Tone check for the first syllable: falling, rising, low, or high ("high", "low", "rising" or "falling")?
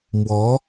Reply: rising